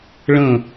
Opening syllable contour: falling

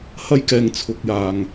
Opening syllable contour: high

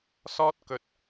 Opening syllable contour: high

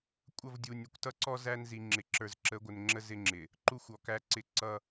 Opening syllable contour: falling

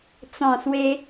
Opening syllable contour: low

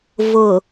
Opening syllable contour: low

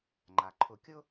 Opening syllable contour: low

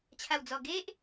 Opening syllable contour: low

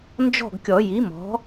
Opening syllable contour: falling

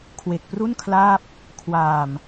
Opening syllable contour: low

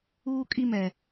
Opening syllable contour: high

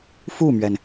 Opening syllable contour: falling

